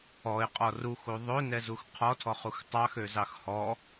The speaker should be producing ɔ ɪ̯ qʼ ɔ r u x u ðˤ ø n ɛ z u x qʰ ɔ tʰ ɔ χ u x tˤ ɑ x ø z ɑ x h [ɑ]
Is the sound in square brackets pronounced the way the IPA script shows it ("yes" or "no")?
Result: no